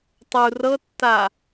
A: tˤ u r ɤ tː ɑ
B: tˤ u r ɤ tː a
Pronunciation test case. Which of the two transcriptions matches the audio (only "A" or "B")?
B